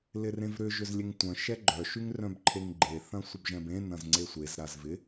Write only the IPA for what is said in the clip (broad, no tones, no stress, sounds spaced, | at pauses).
l ɪ r ẽ v ɾ ʏ ʒ ʏ z lʲ e ŋ tʷ œ̃ ʃ ɛ ɡ͡ǃ œ ʃ y ŋ r œ̃ b ǃʰ e ŋ ɡ͡ǃ e θ ɐ̃ sʷ ɪ b ʒ ɛ̃ b ẽ n ɐ̃ z ŋ͡ǀ e sʷ e z ɾ a z v ɪ